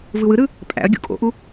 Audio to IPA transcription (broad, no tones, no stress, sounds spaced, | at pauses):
v ɯ w ɯ ɾ ɯ | pʼ æ̰ ɐ̯ ɡʲ ṵ kʼ o̰ ʔ u